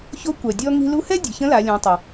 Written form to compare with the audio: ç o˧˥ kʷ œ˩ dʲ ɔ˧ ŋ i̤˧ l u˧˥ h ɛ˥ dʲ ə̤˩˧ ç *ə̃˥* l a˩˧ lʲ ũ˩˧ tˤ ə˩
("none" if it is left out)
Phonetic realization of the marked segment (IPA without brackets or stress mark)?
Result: ə̃˧˥